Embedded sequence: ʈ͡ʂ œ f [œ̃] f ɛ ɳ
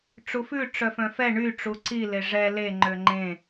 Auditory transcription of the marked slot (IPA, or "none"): œ̃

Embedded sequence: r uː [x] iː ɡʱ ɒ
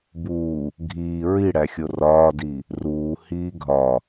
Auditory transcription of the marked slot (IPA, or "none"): h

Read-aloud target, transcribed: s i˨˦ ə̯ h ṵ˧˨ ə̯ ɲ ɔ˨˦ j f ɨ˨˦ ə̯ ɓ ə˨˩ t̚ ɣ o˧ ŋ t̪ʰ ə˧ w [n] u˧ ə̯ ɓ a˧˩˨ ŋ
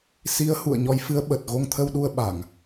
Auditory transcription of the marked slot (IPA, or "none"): ɗ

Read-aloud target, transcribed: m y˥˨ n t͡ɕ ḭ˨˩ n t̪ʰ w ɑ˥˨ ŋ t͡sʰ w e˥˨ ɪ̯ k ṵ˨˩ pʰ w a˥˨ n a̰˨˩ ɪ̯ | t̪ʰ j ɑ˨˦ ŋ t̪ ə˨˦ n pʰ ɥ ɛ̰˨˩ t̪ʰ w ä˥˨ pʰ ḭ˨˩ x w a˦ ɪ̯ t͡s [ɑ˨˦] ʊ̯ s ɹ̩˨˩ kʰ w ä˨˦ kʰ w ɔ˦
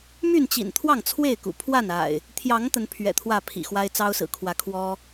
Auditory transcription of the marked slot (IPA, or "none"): ɑ˦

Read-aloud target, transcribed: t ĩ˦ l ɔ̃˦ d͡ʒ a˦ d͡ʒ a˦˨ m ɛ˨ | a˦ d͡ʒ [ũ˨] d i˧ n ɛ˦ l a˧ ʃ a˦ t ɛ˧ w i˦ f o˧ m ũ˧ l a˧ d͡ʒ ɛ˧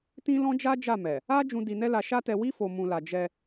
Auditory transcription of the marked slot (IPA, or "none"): ũ˧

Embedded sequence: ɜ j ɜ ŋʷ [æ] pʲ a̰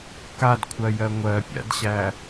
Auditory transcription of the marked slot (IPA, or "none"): ɜ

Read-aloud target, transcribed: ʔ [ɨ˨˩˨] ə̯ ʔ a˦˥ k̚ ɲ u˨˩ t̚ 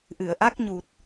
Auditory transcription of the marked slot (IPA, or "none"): ɨ˨˩˨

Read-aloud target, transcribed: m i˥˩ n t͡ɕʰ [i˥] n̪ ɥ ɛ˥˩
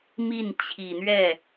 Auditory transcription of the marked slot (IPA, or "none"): i˨˩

